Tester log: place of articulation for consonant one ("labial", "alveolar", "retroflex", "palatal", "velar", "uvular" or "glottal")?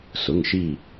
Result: alveolar